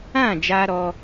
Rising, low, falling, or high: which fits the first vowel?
falling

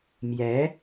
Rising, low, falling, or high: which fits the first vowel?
rising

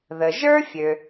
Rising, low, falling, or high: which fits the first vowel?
low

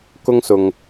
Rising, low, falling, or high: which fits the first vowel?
high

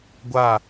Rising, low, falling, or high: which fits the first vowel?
falling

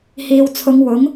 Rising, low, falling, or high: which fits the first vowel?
low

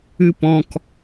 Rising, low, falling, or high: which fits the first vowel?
high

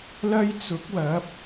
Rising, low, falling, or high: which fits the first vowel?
high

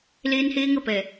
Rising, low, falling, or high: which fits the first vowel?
high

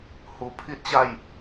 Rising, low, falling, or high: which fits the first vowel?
low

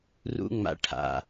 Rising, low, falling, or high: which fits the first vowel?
high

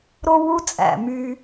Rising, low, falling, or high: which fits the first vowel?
high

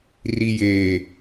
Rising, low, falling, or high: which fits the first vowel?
low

